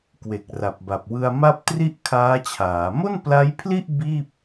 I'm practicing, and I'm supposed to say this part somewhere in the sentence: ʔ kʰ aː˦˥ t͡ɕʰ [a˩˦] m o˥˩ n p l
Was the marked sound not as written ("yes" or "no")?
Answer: yes